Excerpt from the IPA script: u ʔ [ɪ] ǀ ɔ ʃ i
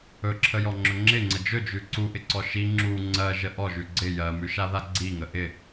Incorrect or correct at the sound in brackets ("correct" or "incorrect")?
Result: correct